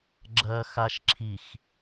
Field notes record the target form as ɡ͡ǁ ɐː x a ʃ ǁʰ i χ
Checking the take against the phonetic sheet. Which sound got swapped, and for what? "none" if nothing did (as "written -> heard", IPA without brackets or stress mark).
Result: χ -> x